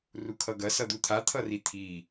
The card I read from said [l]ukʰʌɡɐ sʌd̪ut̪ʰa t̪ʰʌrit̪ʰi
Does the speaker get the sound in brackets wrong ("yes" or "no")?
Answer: yes